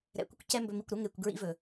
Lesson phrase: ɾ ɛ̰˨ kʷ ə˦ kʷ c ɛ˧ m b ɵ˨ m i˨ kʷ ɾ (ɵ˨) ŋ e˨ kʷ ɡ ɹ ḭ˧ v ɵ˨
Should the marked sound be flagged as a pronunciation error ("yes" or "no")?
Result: yes